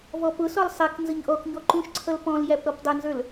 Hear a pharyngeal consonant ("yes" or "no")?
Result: no